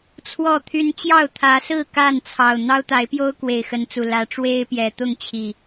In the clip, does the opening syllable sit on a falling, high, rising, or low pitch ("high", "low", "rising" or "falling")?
falling